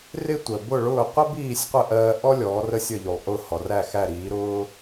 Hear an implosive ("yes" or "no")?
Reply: no